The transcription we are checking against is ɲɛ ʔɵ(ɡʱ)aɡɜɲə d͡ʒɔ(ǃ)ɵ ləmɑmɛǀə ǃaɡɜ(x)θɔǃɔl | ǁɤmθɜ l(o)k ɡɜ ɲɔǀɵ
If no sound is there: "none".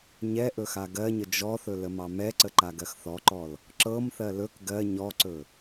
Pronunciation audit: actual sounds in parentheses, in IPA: x, θ, x, ɵ

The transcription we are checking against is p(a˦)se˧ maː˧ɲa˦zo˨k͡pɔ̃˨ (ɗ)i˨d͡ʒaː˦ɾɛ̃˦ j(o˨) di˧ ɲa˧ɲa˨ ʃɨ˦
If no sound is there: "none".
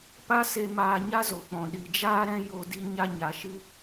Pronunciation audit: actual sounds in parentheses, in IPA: a˦, ɗ, o˧

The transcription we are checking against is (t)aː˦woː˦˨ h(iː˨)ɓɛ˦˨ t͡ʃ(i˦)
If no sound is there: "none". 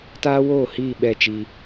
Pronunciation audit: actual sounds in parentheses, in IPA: t, iː˦˨, i˦

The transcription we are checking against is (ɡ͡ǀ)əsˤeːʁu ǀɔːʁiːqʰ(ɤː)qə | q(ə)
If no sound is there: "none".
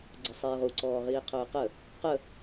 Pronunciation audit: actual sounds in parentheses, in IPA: ɡ͡ǀ, ɵː, ə

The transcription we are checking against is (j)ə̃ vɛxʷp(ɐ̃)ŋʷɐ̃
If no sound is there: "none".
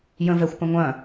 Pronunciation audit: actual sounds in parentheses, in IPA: j, ə̃

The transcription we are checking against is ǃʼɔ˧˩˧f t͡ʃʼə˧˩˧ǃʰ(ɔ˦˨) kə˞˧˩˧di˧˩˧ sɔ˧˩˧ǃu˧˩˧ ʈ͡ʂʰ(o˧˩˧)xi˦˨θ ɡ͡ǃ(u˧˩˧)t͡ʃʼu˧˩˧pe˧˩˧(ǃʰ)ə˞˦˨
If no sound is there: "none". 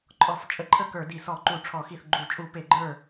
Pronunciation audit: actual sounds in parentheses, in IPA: ə˦˨, ɔ˧˩˧, u˧˩˧, ɡ͡ǃ

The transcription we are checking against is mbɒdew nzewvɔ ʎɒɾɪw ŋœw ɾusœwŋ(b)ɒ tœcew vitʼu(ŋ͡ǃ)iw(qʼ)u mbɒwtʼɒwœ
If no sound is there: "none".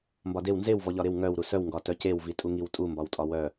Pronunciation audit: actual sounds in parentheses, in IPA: ɡ, ŋ, tʼ

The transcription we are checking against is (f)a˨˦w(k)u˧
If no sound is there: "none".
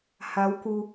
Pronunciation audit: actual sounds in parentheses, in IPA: h, k

